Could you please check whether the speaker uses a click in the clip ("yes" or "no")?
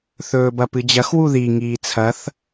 no